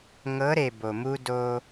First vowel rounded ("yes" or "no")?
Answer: no